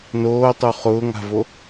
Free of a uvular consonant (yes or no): no